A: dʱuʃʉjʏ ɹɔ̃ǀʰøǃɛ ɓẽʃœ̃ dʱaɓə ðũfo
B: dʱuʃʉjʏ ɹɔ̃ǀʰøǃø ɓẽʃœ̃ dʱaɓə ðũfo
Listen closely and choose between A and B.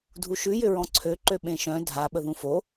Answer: B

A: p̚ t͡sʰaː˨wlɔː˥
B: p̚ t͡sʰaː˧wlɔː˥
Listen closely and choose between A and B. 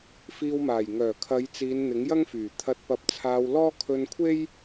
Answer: B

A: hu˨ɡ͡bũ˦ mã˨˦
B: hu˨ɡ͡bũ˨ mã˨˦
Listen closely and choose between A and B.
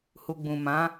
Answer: B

